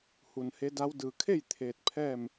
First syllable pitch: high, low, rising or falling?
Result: low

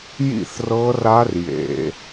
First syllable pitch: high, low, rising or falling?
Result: falling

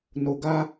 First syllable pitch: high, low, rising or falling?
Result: low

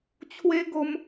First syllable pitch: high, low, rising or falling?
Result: high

